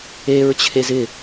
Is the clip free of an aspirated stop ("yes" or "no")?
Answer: no